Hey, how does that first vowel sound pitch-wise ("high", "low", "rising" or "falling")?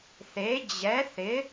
rising